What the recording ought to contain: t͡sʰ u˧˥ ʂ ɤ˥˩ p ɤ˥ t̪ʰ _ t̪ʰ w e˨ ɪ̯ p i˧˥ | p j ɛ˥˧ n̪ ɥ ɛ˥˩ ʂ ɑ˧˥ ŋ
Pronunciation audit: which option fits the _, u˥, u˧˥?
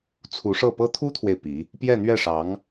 u˥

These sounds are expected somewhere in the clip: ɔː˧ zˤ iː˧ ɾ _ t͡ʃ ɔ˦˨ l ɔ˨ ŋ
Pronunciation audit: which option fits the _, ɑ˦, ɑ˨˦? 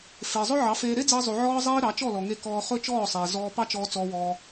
ɑ˨˦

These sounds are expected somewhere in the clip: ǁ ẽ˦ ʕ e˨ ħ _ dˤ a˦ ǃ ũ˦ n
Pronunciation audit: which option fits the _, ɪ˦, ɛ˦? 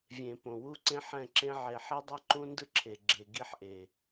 ɛ˦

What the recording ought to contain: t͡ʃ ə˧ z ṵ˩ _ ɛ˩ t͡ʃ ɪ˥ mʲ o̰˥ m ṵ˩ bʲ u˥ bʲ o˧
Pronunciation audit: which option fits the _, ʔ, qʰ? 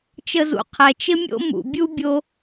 qʰ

